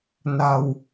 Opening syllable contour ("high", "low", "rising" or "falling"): low